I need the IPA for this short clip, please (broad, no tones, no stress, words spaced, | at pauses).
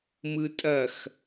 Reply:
mɯtʼɐx